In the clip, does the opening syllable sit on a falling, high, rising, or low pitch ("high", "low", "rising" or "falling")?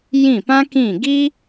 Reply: falling